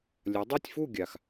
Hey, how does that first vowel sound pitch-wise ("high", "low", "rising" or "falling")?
rising